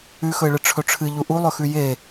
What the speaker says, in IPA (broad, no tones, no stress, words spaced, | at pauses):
ʉxɵɪ̯ɭɨ ʈ͡ʂʰɵʈ͡ʂʰɨ ʎuʔulˠɵxʉ je